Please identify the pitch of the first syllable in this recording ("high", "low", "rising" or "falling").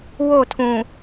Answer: falling